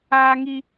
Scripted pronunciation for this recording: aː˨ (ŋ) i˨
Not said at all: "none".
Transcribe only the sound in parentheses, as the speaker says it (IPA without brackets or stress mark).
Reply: ŋ